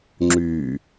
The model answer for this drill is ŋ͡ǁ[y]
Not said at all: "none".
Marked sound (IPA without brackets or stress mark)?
y